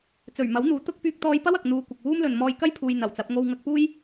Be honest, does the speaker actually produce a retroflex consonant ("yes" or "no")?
no